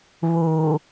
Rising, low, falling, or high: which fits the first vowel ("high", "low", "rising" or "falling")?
low